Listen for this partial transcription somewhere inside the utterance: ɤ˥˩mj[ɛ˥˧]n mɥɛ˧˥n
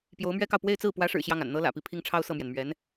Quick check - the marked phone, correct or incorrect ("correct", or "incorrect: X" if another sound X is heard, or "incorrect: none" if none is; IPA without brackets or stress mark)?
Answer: incorrect: ɛ˩